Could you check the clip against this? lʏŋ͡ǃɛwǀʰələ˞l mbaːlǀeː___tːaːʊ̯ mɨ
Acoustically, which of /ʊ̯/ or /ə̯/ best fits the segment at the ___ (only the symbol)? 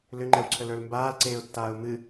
ʊ̯